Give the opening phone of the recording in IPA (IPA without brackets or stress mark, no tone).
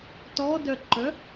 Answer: t